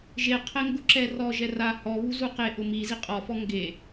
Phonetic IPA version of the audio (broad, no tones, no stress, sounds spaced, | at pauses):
ʒ e qʰ ɛ ŋ ɡ ʊ ǁ ɛ r ɔ ʒ ɛ r a h ɔ β u z u q e ʔ ʊ m i z i qʼ ɔ f ɔ ŋ ɡ e